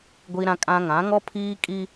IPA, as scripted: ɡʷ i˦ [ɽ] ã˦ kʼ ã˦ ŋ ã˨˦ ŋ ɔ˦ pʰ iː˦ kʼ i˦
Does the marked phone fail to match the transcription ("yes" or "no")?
yes